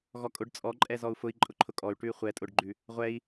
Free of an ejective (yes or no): no